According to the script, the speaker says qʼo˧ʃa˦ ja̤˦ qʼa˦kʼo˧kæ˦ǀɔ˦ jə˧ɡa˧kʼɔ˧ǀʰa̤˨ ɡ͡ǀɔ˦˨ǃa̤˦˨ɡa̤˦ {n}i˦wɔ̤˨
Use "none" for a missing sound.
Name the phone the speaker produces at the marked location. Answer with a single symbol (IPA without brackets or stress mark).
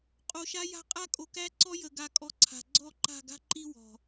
ǃ